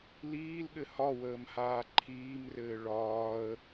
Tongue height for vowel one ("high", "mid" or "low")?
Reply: high